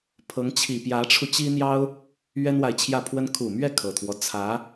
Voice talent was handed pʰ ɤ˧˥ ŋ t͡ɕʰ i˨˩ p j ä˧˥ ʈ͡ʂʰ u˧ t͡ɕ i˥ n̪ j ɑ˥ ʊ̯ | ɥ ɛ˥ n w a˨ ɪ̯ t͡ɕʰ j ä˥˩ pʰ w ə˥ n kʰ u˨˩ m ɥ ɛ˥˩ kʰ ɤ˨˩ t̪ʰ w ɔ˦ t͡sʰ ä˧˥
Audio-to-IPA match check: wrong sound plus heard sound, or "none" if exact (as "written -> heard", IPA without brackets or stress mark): none